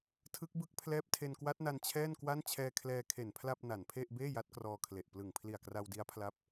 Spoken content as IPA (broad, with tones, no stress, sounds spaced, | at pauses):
tʰ ɯ˦˥ k̚ b ɯ˦˥ k̚ pʰ l ɛː˦˥ p̚ tʰ e˧ n k w a˦˥ t̚ n a˧ n t͡ɕʰ ɛː˥˩ n k w a˥˩ n t͡ɕʰ ɛː˧ kʰ l ɛː˧ kʰ e˨˩ n pʰ l a˥˩ p̚ n a˨˩ n pʰ e˥˩ ʔ b eː˥˩ j a˦˥ t̚ k r ɔː˧ kʰ l e˨˩ ʔ p l ɯ˨˩ ŋ pʰ l i˨˩ a̯ k r a˧ w d i˦˥ a̯ pʰ l a˦˥ p̚